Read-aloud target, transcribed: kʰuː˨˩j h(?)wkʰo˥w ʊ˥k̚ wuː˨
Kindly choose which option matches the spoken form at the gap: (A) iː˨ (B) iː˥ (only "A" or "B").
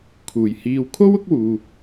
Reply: A